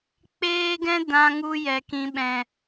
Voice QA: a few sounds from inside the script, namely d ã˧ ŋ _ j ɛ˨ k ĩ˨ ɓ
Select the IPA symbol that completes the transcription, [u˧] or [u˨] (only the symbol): u˧